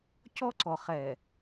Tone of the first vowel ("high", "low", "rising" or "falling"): high